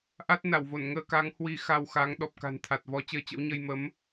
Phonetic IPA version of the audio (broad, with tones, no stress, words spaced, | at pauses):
ʔa˦˥t̚ na˧˩wvo˧˩nŋəː˧ka˨˦ŋ hwi˧xa˧wxa˨˦ŋ ɗɔ˨˩p̚ka̤˨˩nt̪ʰa˨˩t̚vɔ˨˦ t͡ɕəː˧t͡ɕə̰˧˥wɲə˧j mə˨˦m